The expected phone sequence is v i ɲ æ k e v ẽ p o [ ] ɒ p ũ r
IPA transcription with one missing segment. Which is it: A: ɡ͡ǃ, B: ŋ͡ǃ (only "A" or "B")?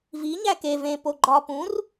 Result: A